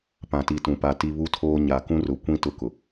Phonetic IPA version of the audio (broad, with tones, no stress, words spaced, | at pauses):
pã˨ti˨tũ˨pa˨ ti˦ βu˦tʰoː˦ ɲa˨kũ˦rʊ˨kʷĩ˦ tʊ˦kʊ˨